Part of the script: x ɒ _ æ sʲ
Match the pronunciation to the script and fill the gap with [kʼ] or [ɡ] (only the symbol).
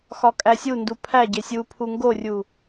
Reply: kʼ